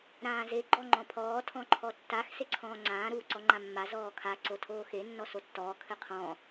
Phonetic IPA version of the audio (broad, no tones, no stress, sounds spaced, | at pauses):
ɾ ãː z e ɡ͡ǃ ɔ ŋ͡ǃ ɔ̃ pʰ ɔː tʰ ɔ̃ ǃʰ ɔ tː a x s e ǀʰ ɔ̃ː ŋ͡ǀ ãː ɾ uː ǀ ɔ ŋ͡ǃ ã mː a z ɔː kʰ a ǀ o tʰ oː x e nː ɔ s o tː ɔː kʰ ɘ qʰ ɔ̃